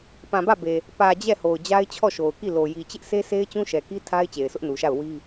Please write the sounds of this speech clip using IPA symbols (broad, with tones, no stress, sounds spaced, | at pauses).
p ã˨ b ä˦˨ b e˨ | p ä˨ d͡ʑ ɛ˦˨ h o˨ ʊ̯ d͡ʑ a˦ ɪ̯ t͡ɕʰ ɔ˦˨ ʃ o˨ ʊ̯ k i˦˨ l o˨ j i˨ t͡ɕ ɪ˦ ʔ sʰ e˦ sʰ e˦ ɪ̯ t͡ɕ ũ˦ ʃ ɛ˨ k i˦ tʰ a˦ ɪ̯ t͡ɕ e˨ ɪ̯ sʰ ʊ˦ ʔ n u˨ ʃ a˦˨ ʊ̯ w i˦